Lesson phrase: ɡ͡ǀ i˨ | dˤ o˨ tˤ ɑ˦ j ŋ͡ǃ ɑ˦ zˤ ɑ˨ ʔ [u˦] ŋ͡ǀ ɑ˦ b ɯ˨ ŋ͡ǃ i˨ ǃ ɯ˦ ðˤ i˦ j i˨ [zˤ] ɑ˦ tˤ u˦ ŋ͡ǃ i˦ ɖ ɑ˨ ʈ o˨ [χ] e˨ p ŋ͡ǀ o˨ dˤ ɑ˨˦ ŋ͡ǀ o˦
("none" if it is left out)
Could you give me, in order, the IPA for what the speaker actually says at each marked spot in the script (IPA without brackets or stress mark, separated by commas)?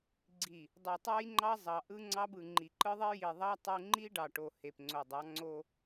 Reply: ɯ˦, ðˤ, h